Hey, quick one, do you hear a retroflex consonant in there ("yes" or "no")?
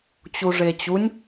yes